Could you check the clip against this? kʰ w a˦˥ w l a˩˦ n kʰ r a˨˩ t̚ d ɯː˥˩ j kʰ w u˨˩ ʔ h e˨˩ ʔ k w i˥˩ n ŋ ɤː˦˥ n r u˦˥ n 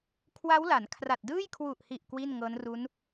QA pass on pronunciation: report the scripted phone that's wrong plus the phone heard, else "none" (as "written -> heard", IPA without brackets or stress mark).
e˨˩ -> i˨˩